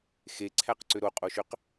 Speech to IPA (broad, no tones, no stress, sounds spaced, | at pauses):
x e ǀʰ æ q ǀ ø ɾ o qʼ o ʃ ø q